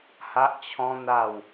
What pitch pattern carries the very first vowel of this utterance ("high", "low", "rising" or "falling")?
high